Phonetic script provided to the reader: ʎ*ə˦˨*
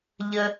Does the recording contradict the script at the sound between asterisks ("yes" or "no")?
yes